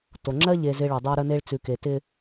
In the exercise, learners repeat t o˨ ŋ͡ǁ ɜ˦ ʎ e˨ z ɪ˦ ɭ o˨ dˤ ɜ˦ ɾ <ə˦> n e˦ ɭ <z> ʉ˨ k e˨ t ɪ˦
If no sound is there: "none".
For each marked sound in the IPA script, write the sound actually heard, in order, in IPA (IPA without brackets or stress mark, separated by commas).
ə˦, t͡s